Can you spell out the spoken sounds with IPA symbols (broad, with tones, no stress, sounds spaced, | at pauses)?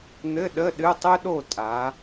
n̪ ɘ˧˥˧ ɗ ə˧˥˧ ɗ ɨ˧˥˧ tˤ ɨ˥ ɗ o˥˨ tʼ a˨˦